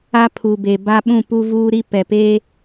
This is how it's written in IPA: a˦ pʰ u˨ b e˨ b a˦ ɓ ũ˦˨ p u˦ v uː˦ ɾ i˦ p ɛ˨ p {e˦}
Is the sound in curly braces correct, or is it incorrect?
correct